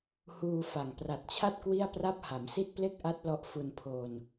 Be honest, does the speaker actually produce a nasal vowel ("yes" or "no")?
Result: no